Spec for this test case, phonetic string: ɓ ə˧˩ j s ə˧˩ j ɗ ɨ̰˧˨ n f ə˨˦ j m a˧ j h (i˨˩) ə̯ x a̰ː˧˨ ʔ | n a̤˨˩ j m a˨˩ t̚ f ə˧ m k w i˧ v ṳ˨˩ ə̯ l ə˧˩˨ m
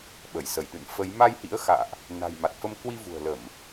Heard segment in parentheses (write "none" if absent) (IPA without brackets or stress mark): ḭ˧˥